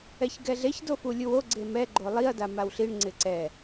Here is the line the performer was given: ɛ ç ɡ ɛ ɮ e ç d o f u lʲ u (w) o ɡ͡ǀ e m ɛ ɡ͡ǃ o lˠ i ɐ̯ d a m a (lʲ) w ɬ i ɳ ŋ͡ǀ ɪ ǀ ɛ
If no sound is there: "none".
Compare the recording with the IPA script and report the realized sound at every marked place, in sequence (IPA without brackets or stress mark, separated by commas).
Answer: w, none